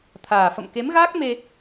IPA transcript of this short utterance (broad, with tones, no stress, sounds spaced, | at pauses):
t̪ʰ aː˨˩ f ə̰˧˨ m k e˨˦ m ɣ aː˦˥ k̚ m e˧